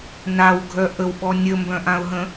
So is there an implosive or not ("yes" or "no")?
yes